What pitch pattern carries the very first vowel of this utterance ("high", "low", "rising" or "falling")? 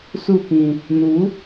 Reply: falling